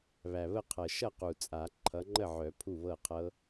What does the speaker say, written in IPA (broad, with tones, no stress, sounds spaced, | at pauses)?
β æ˨˩ β ə˥˩ qʰ ɤ˨˩ ʃ ʌ˥˩ q u˨˩ t͡sʼ a˨˩˦ ǃʰ ʌ˨˦ ŋ͡ǃ ə˥˩ ʕ œ˨˩˦ pʰ u˥˩ β ɤ˥˩ qʰ ɤ˦˥